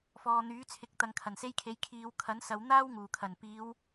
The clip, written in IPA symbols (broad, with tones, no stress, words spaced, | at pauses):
fɔː˨n̪yː˨˥t͡sʰɪ˨k̚ t̪ɐ˨˧ŋkʰɐ˨˩nse˥jkʰe˨˥j kʰiː˨wkʰɐ˨˥n sɐ˨˧w n̪aː˥w ŋuː˨˩kʰɐ˨˩n piː˨˧w